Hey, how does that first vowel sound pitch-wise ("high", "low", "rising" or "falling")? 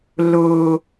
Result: low